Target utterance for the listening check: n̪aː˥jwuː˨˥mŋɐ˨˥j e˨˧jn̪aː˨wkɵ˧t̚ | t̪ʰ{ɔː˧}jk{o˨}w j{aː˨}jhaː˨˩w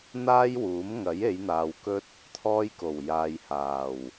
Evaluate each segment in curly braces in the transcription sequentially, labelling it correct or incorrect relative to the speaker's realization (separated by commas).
correct, incorrect, correct